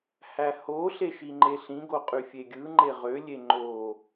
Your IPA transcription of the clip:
h æ h o ɬ e ʃ i ŋ͡ǃ e ɬ ĩ ɡ o qʼ y fʲ e ɡʲ ɯ ŋ͡ǃ e ʁ ø lʲ e ŋ͡ǃ o

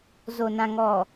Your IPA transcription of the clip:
z o˨ n ã˨ ŋ ɔ˨

